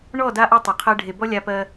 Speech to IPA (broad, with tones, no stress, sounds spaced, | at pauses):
ɳ ɔ˦˨ d a˦ ʔ ɔ˦ tˤ o˨ qʰ ɜ˦ ɖʱ e˨ b ɔ˦ lʲ a˦ p ɜ˦